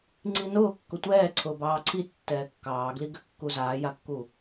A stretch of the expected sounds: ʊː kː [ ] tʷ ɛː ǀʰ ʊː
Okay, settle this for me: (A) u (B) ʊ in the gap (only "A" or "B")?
B